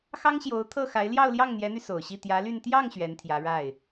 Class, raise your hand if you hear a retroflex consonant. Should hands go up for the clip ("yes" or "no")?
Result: yes